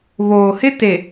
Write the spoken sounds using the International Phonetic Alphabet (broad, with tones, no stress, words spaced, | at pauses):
βoː˨hɪ˦ te˨